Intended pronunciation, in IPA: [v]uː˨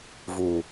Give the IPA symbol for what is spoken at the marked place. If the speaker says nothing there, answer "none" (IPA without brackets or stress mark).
v